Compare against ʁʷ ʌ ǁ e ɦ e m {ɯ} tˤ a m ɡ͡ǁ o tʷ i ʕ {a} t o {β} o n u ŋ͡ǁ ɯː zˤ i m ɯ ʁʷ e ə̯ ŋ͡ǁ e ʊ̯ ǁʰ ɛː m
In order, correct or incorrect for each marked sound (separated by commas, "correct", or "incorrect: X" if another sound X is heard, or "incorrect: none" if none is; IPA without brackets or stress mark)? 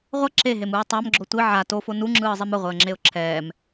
incorrect: ɯː, correct, incorrect: f